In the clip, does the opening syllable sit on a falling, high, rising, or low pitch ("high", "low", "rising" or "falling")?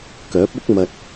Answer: rising